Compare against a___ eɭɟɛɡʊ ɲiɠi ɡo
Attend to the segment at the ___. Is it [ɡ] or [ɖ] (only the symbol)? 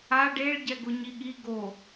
ɖ